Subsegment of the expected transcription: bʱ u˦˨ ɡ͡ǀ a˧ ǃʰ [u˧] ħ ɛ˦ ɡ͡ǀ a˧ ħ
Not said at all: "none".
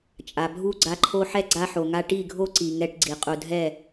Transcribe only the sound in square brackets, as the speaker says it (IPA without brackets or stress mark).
o˧